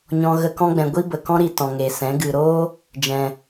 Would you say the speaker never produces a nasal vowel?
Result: no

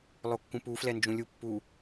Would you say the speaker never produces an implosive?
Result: yes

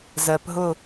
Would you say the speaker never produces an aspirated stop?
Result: yes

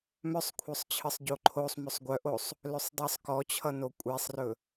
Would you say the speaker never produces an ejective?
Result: no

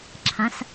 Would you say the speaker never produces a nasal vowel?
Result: no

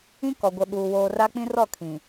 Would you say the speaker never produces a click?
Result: yes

